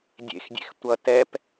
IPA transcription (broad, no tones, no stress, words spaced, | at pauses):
dʲḛxdʲḛx tʷʌ tɛp